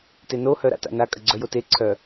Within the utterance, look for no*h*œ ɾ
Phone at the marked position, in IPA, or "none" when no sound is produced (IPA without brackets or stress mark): h